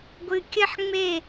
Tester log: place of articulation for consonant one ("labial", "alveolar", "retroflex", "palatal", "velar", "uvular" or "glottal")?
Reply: velar